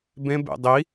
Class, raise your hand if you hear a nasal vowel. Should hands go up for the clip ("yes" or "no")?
yes